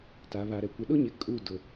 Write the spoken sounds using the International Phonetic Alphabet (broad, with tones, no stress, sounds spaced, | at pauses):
t a˨ β a˨ ɾ ɛ˨ kʷ ɪ˨ ɗ ʊ˦ ɲ ɪ˨ kʼ u˦˨ d ʊ˨